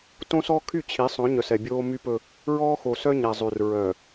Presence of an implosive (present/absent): absent